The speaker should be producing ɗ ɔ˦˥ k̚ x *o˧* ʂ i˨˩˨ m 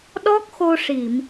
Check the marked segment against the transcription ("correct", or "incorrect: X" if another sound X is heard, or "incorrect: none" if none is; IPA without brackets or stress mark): correct